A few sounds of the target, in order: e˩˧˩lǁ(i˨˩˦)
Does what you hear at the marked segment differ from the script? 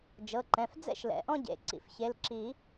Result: no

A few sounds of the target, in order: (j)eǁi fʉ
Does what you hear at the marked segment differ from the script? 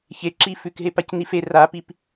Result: yes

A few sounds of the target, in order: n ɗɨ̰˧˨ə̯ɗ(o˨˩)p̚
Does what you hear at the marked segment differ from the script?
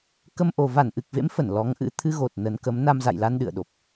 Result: no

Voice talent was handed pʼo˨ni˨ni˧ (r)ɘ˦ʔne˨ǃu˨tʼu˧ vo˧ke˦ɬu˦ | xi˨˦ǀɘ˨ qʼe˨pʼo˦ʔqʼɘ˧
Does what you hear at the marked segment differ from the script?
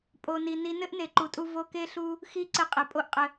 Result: yes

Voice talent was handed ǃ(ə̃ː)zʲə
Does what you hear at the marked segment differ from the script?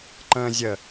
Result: no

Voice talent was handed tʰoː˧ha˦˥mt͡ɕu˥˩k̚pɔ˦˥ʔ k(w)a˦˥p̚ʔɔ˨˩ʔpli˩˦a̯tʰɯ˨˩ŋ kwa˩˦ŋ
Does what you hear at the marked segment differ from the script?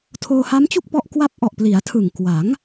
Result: no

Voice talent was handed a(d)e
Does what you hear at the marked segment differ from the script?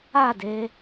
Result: no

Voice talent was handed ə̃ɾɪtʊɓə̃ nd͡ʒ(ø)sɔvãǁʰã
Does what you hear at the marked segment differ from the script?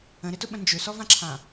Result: no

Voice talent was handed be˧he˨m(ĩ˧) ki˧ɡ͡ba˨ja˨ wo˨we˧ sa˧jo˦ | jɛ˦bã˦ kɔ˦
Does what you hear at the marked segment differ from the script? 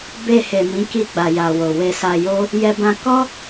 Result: yes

